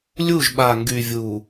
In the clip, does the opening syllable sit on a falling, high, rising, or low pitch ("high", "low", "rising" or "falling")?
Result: falling